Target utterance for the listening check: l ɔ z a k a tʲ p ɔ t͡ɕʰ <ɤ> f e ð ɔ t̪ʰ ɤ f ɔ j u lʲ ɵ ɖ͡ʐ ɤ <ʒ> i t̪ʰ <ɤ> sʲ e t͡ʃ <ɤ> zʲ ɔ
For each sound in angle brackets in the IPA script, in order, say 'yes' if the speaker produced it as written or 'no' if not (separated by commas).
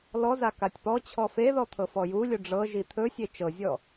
no, yes, no, yes